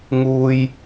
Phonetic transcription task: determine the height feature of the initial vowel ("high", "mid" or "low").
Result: high